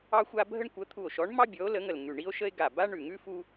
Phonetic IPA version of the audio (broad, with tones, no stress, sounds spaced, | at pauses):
ɑ˥ xʷ a˥ bʱ ə˥ ɳ kʷ ə˨˥ t̪ʰ u˧˩ o̯ ʃ ɔ˨˥ ɳ m ɑ˥ bʲ ɔ˨˥ o̯ l ə˨˥ ŋ ə˧˩ l ŋ ʉ˧˩ ɳ i˥ o̯ ʃ ə˥ e̯ ɡ a˧˩ b a˥ ɳ ʉ˧˩ ŋ ʉ˥ f u˥